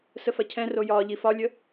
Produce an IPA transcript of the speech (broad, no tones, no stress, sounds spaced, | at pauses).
s ə f ɐ cʰ ɛ̃ r o j ɒː ʎ i f ɒ lʲ ə